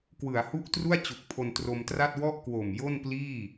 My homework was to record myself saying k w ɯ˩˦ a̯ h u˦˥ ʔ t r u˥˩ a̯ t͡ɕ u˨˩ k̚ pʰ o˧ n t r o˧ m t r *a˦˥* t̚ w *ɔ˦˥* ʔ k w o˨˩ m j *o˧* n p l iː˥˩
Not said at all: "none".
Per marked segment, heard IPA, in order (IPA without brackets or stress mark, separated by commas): a˥˩, ɔ˥˩, o˥˩